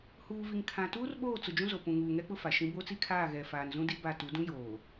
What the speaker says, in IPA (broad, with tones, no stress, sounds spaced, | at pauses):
h uː˨ v i˨ ŋ kʰ ã˨ t uː˦ r ɓ oː˦˨ t͡s ʊ˨ d͡ʒ ũ˦ z o˨ p ũ˨ ŋ uː˨ ŋ ɛ˦ k͡p ʊ˦ f a˨ ʃ ĩ˦ b o˦ t͡s i˦ kʰ aː˦˨ ɣ ɛ˨ f aː˨ n z ũ˦ d i˦ b a˦˨ t u˨˦ d ũ˦ j oː˨